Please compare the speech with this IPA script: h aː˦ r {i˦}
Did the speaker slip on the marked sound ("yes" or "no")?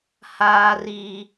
no